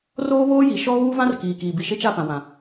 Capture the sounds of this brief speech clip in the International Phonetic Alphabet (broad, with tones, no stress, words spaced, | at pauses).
roː˦βoː˦ji˨ ʃɔ˦ɣuː˦vã˦r kiː˨kiː˨ bi˨ʃe˦t͡ʃa˦˨ pã˨wã˨